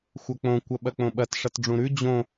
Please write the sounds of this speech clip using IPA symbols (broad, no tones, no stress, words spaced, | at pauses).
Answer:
xʷɐk͡põ kʷɐɓɐk͡põɓɐt ʂɐtɖ͡ʐũɾʉ d͡ʑõ